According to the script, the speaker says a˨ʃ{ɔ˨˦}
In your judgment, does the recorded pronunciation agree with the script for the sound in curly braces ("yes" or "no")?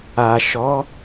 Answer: yes